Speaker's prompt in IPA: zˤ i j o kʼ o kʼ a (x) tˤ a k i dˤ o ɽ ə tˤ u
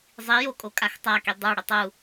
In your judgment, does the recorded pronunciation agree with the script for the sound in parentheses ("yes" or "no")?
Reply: yes